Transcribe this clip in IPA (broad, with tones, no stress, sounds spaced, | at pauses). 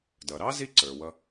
d ʌ˩ ɾ ɑ˥ z i˥ ǀ ə˞˩ w ʌ˧